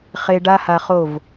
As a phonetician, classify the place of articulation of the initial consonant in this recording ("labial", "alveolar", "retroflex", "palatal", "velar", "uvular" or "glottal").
uvular